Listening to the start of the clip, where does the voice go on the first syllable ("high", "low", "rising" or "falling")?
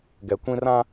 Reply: low